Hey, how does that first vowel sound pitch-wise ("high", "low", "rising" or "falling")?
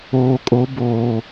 low